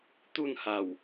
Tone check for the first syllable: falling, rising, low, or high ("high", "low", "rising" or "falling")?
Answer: falling